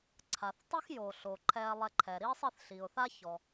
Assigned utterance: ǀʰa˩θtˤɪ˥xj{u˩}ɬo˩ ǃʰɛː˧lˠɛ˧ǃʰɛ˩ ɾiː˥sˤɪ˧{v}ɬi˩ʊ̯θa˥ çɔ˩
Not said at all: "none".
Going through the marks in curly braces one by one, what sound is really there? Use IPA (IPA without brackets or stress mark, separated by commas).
o˩, θ